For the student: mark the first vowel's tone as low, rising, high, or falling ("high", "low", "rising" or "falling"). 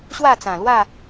falling